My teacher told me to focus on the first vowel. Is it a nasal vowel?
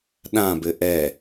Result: yes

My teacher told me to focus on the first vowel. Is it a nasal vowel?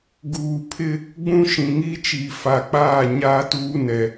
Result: no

